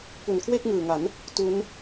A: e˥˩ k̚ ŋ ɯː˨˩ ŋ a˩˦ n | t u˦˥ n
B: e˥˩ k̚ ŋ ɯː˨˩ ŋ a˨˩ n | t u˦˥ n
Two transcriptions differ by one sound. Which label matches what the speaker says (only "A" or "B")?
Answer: A